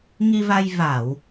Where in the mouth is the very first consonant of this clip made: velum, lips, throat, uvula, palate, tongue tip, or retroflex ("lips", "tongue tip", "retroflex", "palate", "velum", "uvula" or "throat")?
velum